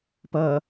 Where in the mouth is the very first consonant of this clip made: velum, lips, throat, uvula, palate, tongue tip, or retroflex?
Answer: lips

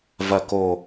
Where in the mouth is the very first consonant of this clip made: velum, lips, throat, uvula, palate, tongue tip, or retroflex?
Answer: lips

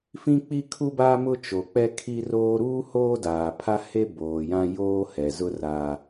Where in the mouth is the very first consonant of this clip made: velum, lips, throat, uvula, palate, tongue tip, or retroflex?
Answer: lips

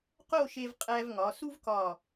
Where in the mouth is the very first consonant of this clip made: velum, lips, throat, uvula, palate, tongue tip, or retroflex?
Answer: uvula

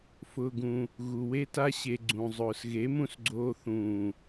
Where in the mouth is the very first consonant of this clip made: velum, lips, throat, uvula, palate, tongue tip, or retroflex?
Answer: lips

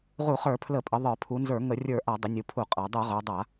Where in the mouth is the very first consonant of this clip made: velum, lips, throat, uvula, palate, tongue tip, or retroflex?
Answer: uvula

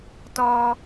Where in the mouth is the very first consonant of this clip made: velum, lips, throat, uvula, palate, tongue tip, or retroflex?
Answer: tongue tip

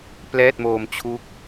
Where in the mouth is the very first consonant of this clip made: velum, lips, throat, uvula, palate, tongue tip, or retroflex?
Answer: lips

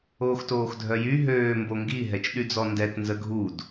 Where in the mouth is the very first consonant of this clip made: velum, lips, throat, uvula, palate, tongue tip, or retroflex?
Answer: velum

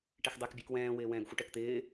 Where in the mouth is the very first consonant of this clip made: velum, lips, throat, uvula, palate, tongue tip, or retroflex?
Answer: retroflex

